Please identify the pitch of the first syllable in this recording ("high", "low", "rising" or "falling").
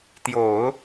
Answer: low